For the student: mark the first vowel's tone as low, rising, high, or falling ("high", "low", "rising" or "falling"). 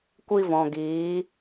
high